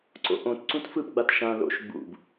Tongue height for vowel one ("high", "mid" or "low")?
mid